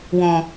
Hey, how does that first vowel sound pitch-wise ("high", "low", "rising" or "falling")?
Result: low